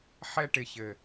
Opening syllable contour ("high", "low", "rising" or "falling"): high